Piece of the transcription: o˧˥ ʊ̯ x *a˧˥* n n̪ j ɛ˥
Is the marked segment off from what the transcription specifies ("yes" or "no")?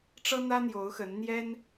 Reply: yes